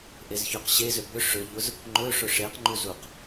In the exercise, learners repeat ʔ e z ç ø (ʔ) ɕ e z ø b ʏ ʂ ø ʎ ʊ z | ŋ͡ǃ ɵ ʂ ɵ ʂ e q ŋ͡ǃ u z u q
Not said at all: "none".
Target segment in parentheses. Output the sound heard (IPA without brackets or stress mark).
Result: q